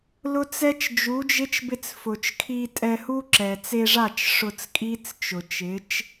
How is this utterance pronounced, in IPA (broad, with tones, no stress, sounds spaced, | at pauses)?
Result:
l ʊ˦ t͡s ɛ˦ t͡ʃ d͡ʒ u˨˦ d͡ʒ ɪ˦ t͡ʃ b ɪ˧ t͡s f ʊ˨ t͡ʃ kʰ i˧ tʼ ɛ˧ h u˦ ǁ ɛ˨ t͡s e˧ ʐ a˦˨ t͡ʃ ʂ ʊ˧ t͡s kʼ i˦ t͡s t͡ʃ ʊ˨ t͡ʃ ɪ˨˦ t͡ʃ